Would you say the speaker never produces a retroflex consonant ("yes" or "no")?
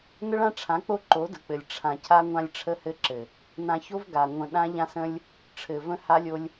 no